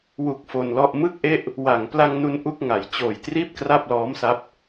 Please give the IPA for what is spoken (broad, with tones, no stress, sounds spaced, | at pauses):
w u˨˩ k̚ f o˧ n l ɔ˥˩ ʔ m ɯ˥˩ k̚ ʔ e˥˩ ʔ | w a˩˦ ŋ p l a˧ ŋ n u˧ n ʔ u˥˩ k̚ ŋ a˩˦ j t͡ɕ oː˨˩ j t r iː˥˩ p̚ k r a˥˩ p̚ l ɔː˦˥ m s a˦˥ p̚